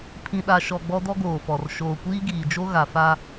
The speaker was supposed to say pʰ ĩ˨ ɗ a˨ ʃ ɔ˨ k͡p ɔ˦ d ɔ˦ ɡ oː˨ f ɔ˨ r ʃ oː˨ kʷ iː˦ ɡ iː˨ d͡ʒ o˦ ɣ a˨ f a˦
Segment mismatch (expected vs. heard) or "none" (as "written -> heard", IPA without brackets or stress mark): k͡p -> ɡ͡b